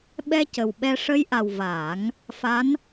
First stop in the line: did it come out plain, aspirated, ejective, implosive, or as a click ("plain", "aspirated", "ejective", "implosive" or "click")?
implosive